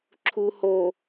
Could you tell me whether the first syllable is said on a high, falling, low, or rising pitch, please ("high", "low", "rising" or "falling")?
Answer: low